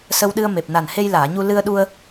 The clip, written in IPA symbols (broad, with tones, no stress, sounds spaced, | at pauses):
s ə˧ w ɗ ɨ˧ ə̯ m e˨˩ p̚ n a˨˩ n h e˧ j l aː˨˩˨ ɲ u˧ l ɨ˧ ə̯ ɗ u˧ ə̯